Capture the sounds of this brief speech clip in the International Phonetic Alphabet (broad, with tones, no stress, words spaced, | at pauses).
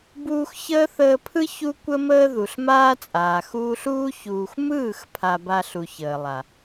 buː˧x çəː˦θəː˧pʰɯ˦ çu˦kʷə˦məː˦ ðu˨ɬmaː˦t͡sʼaː˨ xuː˧ɬuː˦ çuː˨xʷmɯː˦˨x pʰa˧ba˧ ɬu˨çəː˨ lˠa˨